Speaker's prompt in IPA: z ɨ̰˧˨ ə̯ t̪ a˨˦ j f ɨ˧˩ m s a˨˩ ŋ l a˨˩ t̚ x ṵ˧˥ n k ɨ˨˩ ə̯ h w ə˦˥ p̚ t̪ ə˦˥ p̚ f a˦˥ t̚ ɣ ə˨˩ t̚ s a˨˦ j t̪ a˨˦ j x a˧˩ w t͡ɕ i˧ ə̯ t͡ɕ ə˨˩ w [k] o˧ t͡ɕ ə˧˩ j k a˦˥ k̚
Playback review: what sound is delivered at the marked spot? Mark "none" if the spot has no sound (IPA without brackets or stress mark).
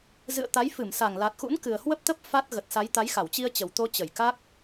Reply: t̪